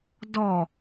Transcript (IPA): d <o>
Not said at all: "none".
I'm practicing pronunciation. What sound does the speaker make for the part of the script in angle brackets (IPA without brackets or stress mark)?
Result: ɔ